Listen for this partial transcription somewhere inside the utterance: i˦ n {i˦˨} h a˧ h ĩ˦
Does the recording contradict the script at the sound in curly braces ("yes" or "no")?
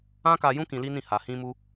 yes